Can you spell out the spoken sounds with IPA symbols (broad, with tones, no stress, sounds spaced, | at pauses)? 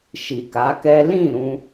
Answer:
ʃ i˨ k a˨˦ k ɛ˦ l ĩ˦˨ ɾ ũ˧